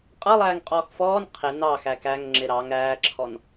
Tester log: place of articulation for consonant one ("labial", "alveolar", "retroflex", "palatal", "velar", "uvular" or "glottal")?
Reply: uvular